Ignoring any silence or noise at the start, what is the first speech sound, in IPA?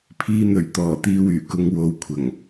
pʰ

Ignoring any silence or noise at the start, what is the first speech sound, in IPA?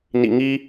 n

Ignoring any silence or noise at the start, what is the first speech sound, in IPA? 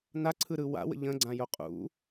n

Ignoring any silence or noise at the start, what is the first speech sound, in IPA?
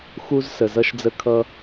x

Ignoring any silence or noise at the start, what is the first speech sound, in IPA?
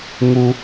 ŋ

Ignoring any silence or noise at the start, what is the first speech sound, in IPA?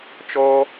t͡ʃ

